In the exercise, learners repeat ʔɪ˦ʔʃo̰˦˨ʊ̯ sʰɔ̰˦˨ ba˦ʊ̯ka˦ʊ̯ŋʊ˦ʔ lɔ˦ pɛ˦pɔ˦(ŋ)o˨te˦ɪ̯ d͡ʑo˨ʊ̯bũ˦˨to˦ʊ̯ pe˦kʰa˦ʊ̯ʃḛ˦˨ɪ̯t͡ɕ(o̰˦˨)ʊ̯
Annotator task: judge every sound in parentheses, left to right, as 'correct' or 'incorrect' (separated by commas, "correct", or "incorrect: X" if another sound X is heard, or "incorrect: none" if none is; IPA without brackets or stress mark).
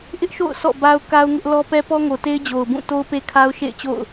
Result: correct, correct